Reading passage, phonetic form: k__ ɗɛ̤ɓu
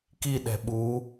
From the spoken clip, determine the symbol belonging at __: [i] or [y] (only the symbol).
i